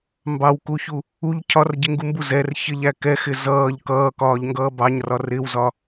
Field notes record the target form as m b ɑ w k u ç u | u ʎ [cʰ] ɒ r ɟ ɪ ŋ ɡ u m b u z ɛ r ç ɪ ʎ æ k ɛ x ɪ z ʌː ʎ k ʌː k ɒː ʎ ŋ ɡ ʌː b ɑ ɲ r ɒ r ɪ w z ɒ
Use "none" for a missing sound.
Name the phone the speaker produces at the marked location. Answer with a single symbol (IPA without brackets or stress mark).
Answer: cʰ